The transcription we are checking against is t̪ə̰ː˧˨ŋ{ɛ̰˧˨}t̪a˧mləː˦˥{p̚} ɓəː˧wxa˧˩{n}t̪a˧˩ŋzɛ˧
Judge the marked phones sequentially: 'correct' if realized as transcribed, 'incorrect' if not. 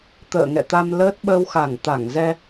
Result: correct, incorrect: t̚, incorrect: ŋ

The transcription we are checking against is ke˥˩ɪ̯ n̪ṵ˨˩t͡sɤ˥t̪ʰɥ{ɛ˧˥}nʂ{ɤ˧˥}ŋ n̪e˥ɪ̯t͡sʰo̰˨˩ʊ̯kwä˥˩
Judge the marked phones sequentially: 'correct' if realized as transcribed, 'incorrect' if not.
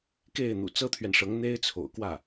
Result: incorrect: ɛ˨, correct

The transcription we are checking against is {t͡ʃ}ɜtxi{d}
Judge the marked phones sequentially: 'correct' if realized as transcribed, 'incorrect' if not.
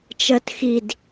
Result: correct, correct

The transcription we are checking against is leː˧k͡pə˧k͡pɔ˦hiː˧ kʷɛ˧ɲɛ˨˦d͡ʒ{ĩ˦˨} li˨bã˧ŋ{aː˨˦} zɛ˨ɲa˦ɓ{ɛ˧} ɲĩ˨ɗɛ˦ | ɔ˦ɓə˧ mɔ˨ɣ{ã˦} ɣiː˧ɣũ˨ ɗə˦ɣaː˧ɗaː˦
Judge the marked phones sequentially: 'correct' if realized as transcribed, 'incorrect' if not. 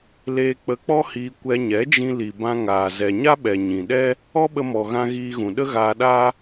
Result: incorrect: ĩ˧, incorrect: aː˨, incorrect: ɛ˨, incorrect: ã˧

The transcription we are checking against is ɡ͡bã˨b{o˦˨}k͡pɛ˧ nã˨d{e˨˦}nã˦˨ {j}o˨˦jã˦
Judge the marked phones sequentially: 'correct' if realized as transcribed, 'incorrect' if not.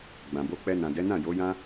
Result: incorrect: o˧, incorrect: ɛ˨˦, correct

